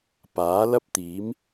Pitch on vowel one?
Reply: rising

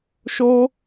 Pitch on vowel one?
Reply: high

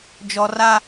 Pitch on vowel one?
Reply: high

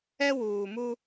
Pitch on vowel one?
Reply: high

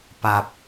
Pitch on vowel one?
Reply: low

